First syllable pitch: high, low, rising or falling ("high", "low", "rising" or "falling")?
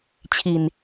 low